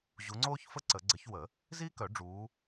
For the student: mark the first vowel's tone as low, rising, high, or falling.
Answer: rising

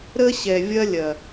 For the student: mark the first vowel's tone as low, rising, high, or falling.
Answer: high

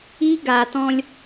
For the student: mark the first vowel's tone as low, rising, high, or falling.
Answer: high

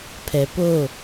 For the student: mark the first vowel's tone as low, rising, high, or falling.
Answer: low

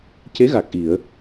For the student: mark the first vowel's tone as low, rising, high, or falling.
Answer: rising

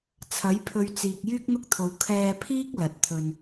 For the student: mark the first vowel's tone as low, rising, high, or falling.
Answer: rising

